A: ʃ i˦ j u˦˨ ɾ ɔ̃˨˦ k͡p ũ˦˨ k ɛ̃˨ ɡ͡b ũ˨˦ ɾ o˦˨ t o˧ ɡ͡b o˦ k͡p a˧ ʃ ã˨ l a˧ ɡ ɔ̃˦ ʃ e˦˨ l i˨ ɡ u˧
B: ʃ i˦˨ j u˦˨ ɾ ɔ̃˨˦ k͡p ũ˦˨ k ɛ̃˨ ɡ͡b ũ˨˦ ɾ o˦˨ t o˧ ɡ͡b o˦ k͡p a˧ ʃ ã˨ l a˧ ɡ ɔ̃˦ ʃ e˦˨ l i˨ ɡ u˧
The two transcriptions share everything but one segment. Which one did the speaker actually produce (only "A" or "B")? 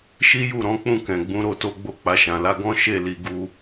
A